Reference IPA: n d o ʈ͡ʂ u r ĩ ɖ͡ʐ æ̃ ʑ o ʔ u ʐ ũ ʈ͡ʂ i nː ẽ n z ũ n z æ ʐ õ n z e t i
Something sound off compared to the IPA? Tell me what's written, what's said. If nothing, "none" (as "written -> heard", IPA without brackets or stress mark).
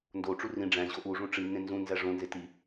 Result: none